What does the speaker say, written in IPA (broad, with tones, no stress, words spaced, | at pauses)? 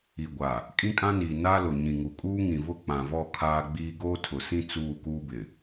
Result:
i˨ɡʷa˨ | kʼĩ˦kʼã˦niː˨ na˦ lʊ˨ɲĩ˨ŋu˨ kʼuː˦ŋĩ˨vʊ˦˨ k͡pã˨vɔ˦˨ kʰaː˦ɡ͡biː˦ ɡoː˦tʰʊ˨sĩ˦ t͡suː˦˨kuː˦bɪ˨